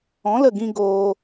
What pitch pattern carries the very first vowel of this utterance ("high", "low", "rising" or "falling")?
rising